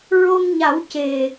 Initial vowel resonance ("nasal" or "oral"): oral